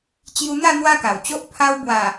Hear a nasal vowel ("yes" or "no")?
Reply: no